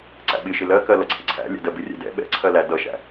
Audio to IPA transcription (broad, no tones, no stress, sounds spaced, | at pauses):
ǀ æ̰ ɓ ɪ ʃ ɪ l ɜ k ɜ l ʌ ǀʰ ɪ ǀʰ æ̰ lʲ ɛ̰ d ɜ b ɪ rʲ ɛ̰ d ɛ̰ ɓ ɛ̰ ǀʰ ɜ l æ d ʌ ʃ æ̰